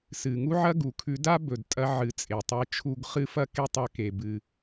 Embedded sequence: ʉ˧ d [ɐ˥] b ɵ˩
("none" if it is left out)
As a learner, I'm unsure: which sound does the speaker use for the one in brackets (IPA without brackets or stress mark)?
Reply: a˥